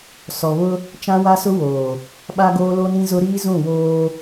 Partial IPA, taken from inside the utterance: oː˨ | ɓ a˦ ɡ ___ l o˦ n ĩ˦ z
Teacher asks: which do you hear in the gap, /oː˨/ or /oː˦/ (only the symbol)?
oː˦